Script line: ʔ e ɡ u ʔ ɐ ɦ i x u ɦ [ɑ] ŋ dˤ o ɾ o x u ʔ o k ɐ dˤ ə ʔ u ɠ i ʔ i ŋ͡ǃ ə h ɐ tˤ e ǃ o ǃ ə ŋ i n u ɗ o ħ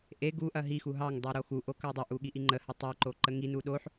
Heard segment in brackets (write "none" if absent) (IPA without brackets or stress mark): ɑ